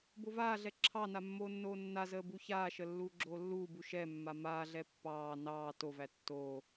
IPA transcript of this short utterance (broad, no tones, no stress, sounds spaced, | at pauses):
b o v aː ɮ ɛ ǁʰ ɑ n a mː oː nː oː nː a z əː b u ç aː ʃ ə lː uː ɡ͡ǁ oː lː uː b u ʃ ɛ mː a m aː ɮ ɛ pː ɑː n ɑː t o v æ tː oː